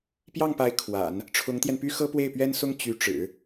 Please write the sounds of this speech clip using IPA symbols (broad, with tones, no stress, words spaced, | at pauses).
pjɑ˥˩ŋpa˧˥ɪ̯ kʰwa̰˨˩˦n | ʈ͡ʂʰʊ˧˥ŋt̪jɛ˧npy˥ xɤ˥pwe˥˩ɪ̯pɥɛ˥nsʊ˥ŋ t͡ɕy˧˥ʈ͡ʂɻ̩˨˩˦